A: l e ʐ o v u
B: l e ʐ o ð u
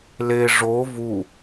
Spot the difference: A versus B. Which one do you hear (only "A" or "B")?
A